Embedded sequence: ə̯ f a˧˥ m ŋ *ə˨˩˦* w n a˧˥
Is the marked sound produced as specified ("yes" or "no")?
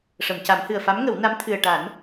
yes